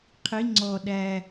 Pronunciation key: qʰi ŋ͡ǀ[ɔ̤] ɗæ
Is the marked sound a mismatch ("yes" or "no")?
yes